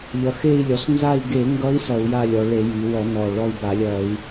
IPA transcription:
ʎʌ˩˧xe˦˨i̯lʲɔ˩˧s nza˦˨i̯ɡe˧˩˧ŋɡʌ˧˥i̯ sʌ˧˩˧u̯ja˦˨lʲɔ˩˧ɭe˧˩˧ ji˩˧wʌ˧˩˧nɔ˨˩ ɭɔ˦˨i̯ba˧˩˧lʲʌ˧˩˧i̯

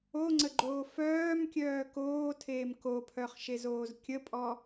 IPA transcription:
oŋ͡ǀəɡ͡ǃoː fœːmkʲœː koːtʰeːm kopʰœχʃezoːz kʲəpʼɔ

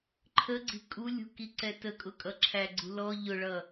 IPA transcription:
ǃʰəɡ͡ǀi̤ kʼulʲṳkiǀɛ təkʼʊkʼʌǁʰæ ɡ͡ǀṳlɔ ʎʊɭʌ

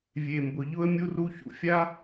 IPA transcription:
vʲe˨mbʊ˨ ʎʊ˧ə̯mʲu˧ru˧ çṵ˧fʲa˦

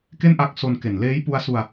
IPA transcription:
ke˥˩nʔa˦˥k̚so˧n ke˨˩nleː˦˥j pu˧a̯su˧a̯

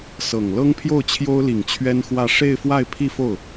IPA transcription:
sɤ˨˩ŋ lɤ˥ŋpʰjo˥˩ʊ̯ t͡ɕʰjo˥ʊ̯li˨˩ŋ t͡ɕʰɥɛ˥nxwä˥˧ ʂe˥˧ɪ̯fwa˥˧ɪ̯ pʰi˥˧fo˥˩ʊ̯

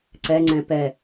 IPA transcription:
ǀɛ ŋ͡ǀɛ̃pɛ

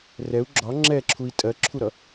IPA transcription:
rɛu̯ ɡ͡ǁɒ ŋ͡ǁɛǁʰui̯ tʼɜǁʰuɾʌ

